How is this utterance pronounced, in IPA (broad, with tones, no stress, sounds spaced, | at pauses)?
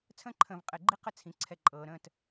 t͡sʰ ə̃ː˦ ǃʰ ə̃ː˨ v qʼ ɛ˨ ɡ͡ǃ i˦ q ə˦ t͡sʰ ĩ˨ ǀʰ ɛ˨ ǃʼ ɤː˨ ɾ ə̃ː˦˨ t